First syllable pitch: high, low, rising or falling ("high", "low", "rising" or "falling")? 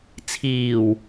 low